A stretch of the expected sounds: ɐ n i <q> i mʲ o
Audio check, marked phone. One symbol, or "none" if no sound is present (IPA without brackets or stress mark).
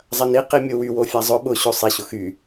q